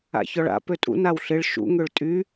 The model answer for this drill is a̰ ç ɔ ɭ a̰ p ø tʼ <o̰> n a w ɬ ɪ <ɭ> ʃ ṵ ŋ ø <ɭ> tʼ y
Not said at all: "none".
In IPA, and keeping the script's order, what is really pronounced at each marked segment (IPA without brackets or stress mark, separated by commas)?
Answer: ṵ, ɭ, ɭ